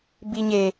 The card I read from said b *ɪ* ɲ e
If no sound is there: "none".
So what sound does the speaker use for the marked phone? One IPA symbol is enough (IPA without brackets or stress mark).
i